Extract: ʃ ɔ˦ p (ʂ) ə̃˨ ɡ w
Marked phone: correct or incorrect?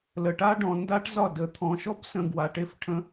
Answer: incorrect